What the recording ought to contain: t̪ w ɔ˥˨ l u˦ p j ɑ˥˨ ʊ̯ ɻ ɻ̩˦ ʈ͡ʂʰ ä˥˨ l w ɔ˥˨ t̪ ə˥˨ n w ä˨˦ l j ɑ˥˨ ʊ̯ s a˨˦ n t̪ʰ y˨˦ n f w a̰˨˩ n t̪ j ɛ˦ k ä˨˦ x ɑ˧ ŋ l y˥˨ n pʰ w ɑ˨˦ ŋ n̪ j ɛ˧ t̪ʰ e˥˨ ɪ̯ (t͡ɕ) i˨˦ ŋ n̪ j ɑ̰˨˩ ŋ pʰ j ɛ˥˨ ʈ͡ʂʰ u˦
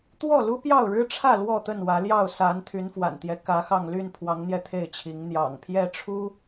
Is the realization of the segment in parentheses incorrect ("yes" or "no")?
yes